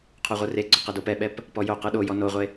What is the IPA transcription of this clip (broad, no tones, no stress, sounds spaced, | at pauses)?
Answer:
qʰ o ʁʷ ɯ r e ɡ͡ǀ o q e d o p ɛ ɓ ɛ p | p ɔ j o q ɯ ɗ o j ɔ n o ʁʷ e